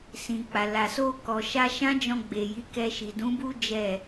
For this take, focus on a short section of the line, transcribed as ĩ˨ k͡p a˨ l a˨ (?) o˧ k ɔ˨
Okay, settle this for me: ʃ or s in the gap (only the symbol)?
s